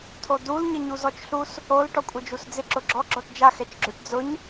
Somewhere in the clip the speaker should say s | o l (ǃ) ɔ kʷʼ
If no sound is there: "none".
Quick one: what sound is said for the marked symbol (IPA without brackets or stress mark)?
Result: ʈ